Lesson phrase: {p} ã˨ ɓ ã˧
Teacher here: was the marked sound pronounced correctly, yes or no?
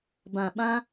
no